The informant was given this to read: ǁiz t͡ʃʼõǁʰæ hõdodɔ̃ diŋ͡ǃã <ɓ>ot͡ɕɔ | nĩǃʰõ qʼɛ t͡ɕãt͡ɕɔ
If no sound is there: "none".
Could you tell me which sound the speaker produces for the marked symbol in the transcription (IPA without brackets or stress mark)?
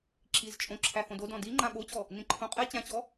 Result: ɓ